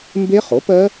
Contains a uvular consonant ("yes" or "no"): yes